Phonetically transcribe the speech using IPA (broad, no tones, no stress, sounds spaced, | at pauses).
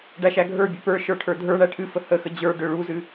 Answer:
ɖ æ ʃ æ ɡʱ ə˞ bʲ ø p ə˞ ʃ ə˞ ʈʰ ə˞ dʱ ə˞ ɳ æ ʈʰ ɨ f ə h ə x ə d͡ʑ ə˞ ɖ ø ɭ u z ɨ